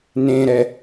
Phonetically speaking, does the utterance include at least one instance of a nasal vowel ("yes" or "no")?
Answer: yes